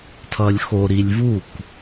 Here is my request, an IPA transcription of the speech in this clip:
tʰ ʌ lʲ x o ɾ i lʲ v u k

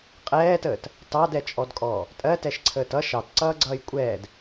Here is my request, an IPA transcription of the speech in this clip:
qʼ ɛː t əː t | t ɑ d ɛ t͡ʃʼ ɔ d kʼ ɔː | tʼ ɜ t ɛ ʃ ǀʰ əː t ʌ ʃ ɑ t ǀ ʌː ɡ͡ǀ ʌː j kʷʼ ɛː d

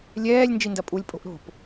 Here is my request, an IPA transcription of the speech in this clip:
lʲ ɛː lʲ n d͡ʒ i n d ɐ pʼ u lʲ pʼ o̤ ʔ ɾ o̤ p

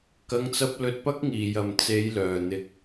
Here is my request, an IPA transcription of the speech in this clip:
k ɐ˧ ŋ t͡s ɐ˧ p̚ l ɵ˨ t̚ p ɐ˧ k̚ ŋ iː˨˩ j ɐ˨˩ m t͡s e˨˧ j l œː˨˩ n̪ ɪ˨ k̚

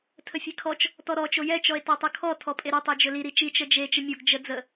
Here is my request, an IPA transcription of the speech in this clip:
tʰ ə fʲ e kʰ ɔ t͡ʃ | t ɔ ɾ ɔ t͡ʃ o j ɛ t͡ʃ ɔ e̯ t ɔ tˤ ɯ kʰ ɔ tʰ ɔ pʼ e ɾ ɵ tˤ e d͡ʒ ɵ l i ɾ i t͡ʃ i t͡ʃ ə d͡ʒ e t͡ʃ ə mʲ o ɡ d͡ʒ ə d͡z ə

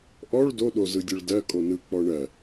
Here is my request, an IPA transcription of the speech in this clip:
ʔ ɔ ɭ d o ɗ o z ɯ dʲ ɯ ɭ d ɜ kʼ o n ɯ k͡p ɔ ɳ ɜ

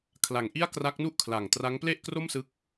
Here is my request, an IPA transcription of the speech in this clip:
kʰ l a˨˩ ŋ ʔ i˥˩ a̯ k r a˦˥ k̚ n u˥˩ ʔ kʰ l a˨˩ ŋ t r a˦˥ ŋ p l e˥˩ ʔ k r o˥˩ m s ɯ˦˥ k̚

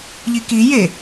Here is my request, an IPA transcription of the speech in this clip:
ʎ i k i j e

